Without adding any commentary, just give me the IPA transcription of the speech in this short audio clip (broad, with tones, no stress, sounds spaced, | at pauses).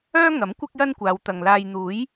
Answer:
œː˥ ŋ ɐ˨˥ m kʷ ɪ˥ k̚ j ɐ˥ n kʷ aː˨˧ w t̪ ɐ˨ ŋ l aː˨ j n̪ uː˨˥ j